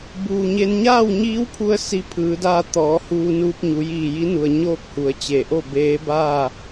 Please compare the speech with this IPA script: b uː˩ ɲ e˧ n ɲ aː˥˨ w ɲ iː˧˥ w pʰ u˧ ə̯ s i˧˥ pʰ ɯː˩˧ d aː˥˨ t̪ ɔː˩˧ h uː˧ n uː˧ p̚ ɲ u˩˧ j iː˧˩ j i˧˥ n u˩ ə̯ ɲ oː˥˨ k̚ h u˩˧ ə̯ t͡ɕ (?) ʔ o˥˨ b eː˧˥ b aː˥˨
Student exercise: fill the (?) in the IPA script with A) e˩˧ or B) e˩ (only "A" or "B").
B